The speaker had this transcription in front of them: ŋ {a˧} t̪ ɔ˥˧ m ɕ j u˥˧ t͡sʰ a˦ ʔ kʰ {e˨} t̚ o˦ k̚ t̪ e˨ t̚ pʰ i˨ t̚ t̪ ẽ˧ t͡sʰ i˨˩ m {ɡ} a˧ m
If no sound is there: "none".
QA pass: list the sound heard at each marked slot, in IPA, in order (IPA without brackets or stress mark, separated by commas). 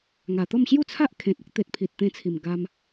a˨˩, ẽ˨, ɡ